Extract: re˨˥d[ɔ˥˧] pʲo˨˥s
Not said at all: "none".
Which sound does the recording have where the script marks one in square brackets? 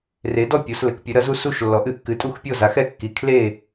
ɔ˥˧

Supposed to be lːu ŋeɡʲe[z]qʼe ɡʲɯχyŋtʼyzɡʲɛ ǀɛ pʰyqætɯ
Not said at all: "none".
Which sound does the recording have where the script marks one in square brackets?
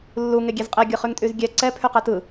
z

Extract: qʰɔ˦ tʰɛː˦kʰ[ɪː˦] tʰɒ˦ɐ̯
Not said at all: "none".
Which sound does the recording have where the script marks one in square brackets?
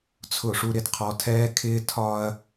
ɪː˦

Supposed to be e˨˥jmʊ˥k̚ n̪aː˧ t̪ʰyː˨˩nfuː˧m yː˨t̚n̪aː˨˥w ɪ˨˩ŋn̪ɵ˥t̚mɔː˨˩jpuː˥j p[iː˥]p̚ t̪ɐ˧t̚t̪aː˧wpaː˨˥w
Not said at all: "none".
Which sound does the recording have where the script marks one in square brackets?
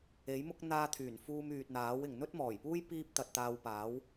iː˥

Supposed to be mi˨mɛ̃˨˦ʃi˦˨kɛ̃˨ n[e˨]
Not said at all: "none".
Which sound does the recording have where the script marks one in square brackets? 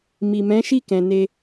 e˧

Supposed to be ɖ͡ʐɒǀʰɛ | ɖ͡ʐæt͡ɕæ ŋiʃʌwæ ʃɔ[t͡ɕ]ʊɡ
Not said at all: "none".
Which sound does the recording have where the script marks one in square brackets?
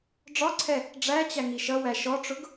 ʈ͡ʂ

